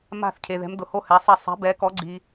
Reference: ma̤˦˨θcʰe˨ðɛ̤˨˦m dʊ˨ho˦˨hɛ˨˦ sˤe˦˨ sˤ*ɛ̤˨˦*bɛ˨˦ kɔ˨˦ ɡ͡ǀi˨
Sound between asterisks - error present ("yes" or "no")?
no